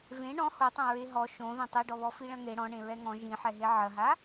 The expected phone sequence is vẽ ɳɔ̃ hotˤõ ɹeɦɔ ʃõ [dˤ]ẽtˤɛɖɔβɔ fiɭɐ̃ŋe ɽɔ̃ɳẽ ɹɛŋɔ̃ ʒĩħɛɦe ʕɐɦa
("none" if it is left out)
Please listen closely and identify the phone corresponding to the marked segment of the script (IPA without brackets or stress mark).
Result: ð